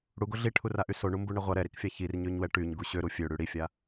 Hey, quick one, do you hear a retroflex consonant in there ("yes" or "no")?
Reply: yes